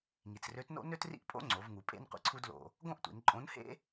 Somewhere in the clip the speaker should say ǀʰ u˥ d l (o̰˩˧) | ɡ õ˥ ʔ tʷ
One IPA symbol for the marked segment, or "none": o̰˧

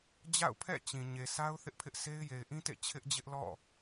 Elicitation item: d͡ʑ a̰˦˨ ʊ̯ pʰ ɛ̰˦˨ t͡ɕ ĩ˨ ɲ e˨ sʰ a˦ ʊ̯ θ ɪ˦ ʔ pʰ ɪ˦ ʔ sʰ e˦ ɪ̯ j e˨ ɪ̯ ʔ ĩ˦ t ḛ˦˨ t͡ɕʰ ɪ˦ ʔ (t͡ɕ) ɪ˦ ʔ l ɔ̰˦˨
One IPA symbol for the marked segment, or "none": d͡ʑ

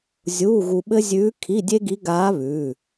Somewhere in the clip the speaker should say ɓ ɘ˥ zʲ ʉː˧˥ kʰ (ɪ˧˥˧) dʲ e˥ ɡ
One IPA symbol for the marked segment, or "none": i˧˥˧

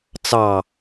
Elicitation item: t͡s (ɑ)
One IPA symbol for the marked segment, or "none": ɑ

